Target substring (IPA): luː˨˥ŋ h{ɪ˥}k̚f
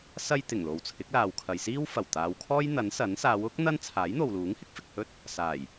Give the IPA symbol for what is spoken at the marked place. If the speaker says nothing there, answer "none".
ɪ˥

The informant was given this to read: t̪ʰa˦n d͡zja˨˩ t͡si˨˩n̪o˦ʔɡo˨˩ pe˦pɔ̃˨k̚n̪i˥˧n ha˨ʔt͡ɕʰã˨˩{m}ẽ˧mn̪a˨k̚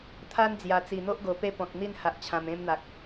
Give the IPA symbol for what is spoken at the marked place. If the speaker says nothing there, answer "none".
m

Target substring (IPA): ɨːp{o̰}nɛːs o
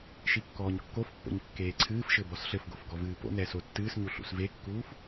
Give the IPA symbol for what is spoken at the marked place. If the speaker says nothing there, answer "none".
o̰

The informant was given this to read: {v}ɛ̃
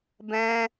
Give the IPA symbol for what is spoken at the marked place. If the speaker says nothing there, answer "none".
b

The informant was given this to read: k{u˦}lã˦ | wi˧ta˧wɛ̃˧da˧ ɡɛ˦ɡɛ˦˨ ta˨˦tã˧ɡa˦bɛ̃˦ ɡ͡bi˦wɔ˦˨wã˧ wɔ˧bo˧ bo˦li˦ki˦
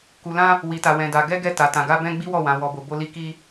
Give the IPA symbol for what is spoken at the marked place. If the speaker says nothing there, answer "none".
u˧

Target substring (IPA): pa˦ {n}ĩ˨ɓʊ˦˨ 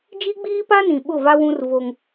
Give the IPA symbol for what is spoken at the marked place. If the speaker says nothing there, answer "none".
n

